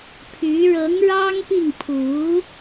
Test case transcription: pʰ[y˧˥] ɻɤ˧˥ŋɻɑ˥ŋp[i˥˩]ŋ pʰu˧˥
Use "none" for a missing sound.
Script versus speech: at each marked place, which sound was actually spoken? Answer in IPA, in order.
y˧˥, i˥˩

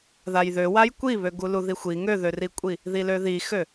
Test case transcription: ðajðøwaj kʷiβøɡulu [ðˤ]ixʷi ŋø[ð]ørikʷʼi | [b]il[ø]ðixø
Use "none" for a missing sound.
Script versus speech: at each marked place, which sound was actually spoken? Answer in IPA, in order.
ð, ð, ð, ø

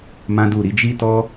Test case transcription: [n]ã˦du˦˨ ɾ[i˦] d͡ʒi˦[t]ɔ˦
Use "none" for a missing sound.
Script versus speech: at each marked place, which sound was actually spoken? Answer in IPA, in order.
m, i˨˦, t

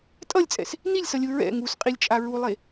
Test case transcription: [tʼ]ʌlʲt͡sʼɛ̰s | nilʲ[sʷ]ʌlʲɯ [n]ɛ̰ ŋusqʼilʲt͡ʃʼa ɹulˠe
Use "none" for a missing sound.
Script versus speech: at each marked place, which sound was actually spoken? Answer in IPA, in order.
tʼ, s, ɹ

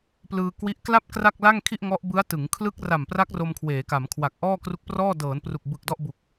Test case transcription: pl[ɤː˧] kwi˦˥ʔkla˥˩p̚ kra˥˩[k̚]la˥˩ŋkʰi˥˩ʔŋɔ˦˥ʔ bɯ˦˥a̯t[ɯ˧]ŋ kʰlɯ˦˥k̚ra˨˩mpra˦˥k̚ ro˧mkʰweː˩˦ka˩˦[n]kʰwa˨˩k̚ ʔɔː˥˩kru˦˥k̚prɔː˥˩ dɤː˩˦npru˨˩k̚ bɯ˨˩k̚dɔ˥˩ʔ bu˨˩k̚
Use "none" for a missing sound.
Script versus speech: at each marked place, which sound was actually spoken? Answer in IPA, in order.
ɯː˧, k̚, ɯ˩˦, m

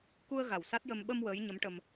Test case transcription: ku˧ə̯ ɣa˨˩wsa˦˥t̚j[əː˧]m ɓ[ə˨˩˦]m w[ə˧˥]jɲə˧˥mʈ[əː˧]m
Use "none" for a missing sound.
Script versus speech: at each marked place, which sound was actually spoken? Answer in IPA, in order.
ə˧, ə˧, əː˧˥, ə˧

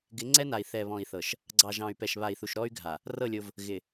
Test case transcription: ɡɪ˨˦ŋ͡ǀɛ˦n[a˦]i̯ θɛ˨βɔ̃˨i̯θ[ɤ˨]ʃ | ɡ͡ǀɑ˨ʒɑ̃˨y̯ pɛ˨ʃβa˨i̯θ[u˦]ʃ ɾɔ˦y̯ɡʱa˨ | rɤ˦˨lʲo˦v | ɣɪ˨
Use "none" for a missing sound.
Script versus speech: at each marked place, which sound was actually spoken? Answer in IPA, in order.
a˨, ɤ˨, u˨

